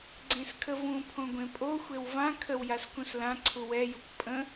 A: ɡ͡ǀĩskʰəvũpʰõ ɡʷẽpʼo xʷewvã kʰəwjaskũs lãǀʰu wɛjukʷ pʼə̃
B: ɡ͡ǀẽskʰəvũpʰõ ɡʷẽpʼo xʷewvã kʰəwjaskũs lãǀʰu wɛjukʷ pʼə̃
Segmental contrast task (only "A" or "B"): B